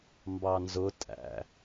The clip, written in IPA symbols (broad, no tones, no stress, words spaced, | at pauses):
mbɑnzʊ tʼæ̰